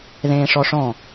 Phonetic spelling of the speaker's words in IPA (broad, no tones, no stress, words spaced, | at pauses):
ðẽːʂɔʂɔ̃